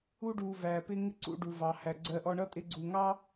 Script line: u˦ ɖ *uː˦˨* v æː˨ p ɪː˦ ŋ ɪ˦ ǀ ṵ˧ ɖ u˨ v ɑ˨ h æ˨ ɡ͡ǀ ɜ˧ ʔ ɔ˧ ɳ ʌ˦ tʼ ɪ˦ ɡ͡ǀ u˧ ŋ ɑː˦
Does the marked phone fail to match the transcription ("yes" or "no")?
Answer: yes